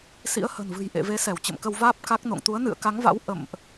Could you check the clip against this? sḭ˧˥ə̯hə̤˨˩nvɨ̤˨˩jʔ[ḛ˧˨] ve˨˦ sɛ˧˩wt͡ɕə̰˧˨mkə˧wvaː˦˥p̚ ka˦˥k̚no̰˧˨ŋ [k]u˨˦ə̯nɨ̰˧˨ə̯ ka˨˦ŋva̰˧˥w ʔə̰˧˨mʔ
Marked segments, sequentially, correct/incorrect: correct, incorrect: t̪

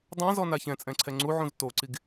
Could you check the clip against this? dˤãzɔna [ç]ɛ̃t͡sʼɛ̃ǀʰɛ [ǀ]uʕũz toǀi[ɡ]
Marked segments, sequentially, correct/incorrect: correct, incorrect: ŋ͡ǀ, correct

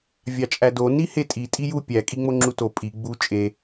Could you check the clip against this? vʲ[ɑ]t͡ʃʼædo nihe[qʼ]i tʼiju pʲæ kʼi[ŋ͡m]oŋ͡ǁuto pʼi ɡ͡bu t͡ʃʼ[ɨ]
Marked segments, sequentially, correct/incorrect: correct, incorrect: tʼ, correct, incorrect: e

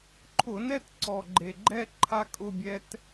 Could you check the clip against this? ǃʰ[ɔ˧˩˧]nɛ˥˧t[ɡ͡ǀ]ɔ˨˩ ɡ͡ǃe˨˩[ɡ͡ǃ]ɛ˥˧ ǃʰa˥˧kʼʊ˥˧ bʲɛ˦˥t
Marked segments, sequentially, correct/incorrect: incorrect: ʊ˧˩˧, incorrect: ǀ, correct

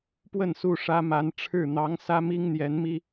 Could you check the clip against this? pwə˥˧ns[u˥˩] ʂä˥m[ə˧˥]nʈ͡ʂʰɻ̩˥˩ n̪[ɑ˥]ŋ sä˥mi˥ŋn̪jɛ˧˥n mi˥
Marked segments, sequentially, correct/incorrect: correct, incorrect: a˧˥, incorrect: ɑ˧˥

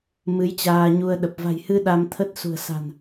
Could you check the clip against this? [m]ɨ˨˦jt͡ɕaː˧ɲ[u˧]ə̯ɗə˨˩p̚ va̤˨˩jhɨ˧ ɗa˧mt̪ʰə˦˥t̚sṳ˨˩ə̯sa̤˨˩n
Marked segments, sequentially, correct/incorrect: correct, correct

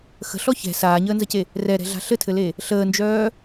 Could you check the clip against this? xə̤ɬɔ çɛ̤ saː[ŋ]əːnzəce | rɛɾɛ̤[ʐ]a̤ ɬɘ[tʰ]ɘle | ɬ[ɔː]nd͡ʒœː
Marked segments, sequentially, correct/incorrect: incorrect: ɲ, incorrect: ɮ, correct, incorrect: əː

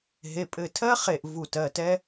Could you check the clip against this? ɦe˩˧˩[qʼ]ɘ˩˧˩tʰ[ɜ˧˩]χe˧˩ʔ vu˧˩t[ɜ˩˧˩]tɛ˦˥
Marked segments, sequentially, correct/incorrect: incorrect: pʼ, incorrect: ɜ˦˥, correct

